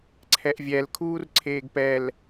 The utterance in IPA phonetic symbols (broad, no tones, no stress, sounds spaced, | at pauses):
ǀʰ ɛ ʔ vʲ ɛ l kʰ uː r ǀʰ eː ɡ p ɛ l